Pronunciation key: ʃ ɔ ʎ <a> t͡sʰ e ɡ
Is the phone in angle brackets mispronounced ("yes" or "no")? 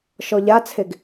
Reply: no